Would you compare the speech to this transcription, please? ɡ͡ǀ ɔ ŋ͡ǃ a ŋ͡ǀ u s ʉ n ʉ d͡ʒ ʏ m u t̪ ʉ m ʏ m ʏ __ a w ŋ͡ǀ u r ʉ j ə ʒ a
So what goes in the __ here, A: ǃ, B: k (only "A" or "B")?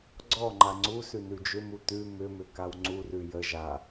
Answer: B